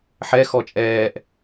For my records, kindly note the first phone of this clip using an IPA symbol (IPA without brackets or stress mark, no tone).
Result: ħ